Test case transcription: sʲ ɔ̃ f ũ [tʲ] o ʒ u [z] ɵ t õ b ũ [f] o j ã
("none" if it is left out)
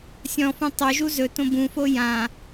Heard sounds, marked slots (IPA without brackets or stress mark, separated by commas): tˤ, z, f